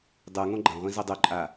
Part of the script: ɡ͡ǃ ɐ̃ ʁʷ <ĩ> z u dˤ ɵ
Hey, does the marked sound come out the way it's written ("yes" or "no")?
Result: yes